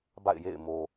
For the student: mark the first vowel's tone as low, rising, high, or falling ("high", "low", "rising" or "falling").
falling